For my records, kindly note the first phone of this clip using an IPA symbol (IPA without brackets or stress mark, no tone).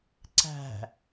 ǀ